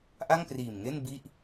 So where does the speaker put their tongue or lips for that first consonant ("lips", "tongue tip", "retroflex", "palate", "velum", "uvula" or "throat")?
throat